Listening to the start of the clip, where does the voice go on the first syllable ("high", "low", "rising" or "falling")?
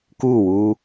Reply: falling